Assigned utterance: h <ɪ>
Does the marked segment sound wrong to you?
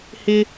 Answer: no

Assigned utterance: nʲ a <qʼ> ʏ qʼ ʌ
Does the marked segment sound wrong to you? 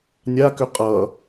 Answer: yes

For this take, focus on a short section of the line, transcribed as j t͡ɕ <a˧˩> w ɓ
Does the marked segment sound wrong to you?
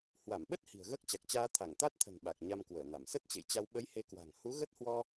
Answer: yes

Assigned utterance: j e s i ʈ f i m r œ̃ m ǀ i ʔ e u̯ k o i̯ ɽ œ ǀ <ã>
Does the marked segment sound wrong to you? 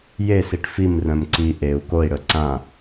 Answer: no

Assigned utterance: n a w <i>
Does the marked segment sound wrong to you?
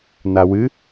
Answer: yes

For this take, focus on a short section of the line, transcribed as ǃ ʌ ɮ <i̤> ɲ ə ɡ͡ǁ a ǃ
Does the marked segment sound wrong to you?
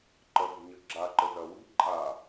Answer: no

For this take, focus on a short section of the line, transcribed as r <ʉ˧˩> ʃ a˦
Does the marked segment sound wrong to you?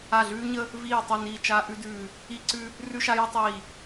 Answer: yes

